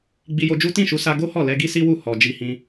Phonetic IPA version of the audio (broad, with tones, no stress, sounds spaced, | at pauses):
ɡ͡b i˧ j o˧ d͡ʒ u˦ t ĩ˦˨ ʃ u˨˦ s a˧ ɡ o˦ h ɔ˦˨ l ɛ˧ ɡ i˦ s i˦ w u˦˨ h ɔ˨ d͡ʒ i˧ h ĩ˧